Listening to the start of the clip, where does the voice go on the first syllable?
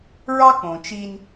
high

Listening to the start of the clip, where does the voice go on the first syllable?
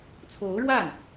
rising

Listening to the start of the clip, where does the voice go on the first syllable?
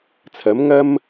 rising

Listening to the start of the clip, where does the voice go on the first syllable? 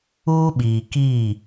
high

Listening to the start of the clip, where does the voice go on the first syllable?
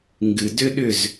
low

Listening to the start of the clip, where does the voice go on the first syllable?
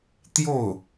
falling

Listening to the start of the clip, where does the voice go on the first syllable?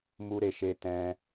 high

